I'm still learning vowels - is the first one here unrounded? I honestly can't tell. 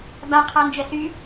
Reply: yes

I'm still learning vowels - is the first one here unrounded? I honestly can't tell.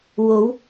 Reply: no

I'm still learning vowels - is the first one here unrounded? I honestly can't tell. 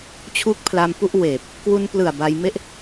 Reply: no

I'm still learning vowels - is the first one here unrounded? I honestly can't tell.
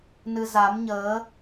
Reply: yes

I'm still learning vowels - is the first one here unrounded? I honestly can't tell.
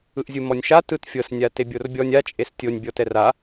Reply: yes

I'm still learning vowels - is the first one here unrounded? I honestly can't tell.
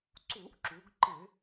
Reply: no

